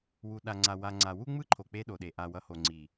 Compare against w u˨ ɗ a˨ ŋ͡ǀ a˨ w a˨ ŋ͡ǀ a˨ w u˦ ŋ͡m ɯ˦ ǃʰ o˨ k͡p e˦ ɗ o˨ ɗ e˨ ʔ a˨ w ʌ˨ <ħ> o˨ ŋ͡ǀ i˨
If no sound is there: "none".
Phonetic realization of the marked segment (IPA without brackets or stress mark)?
h